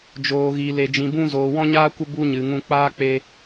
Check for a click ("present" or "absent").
absent